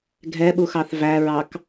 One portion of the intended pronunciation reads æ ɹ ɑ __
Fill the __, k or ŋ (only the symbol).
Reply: k